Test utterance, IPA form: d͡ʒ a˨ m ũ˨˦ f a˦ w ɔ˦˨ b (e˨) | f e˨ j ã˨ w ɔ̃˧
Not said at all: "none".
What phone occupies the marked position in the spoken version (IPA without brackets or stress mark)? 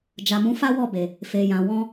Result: e˨